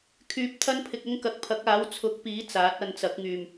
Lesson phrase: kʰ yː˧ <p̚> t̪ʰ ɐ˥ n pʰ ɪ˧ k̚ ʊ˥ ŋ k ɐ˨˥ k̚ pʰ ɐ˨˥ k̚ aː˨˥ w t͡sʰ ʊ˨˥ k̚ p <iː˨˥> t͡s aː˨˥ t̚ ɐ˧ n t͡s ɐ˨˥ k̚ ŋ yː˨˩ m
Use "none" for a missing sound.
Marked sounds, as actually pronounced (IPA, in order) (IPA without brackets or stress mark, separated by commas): p̚, iː˨˥